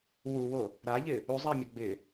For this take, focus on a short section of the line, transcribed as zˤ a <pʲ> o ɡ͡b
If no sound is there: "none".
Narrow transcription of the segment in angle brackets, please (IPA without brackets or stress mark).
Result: mʲ